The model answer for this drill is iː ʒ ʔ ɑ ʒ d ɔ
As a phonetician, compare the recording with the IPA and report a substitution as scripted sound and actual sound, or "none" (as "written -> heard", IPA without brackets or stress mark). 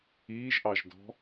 ɔ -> ɔ̤